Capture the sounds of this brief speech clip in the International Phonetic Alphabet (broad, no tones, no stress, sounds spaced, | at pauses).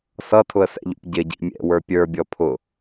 s ʌ tʰ ʊ ə̯ s ɛ̰ ʎ ṵ p ɟ ɪ ɟ ḭ mʲ ɛ̰ w ə˞ pʲ ə˞ bʲ ɔ pʰ ʊ